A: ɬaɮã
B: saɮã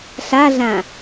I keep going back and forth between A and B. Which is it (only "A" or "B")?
A